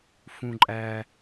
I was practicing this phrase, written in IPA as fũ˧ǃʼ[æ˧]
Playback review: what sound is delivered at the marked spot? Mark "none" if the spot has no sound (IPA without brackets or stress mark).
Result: æ˧